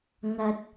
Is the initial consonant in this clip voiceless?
no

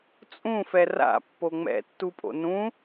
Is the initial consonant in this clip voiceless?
yes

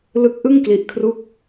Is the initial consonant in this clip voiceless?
no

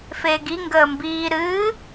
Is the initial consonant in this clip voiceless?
yes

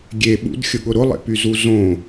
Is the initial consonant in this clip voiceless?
no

